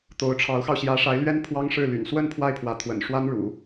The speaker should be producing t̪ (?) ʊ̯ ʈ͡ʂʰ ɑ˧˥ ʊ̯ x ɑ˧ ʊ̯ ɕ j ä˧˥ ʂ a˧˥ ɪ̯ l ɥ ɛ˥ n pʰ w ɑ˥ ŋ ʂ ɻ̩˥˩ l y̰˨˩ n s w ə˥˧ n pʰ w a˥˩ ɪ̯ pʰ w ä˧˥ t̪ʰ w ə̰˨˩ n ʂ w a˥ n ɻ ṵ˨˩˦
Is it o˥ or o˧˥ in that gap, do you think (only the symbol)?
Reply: o˧˥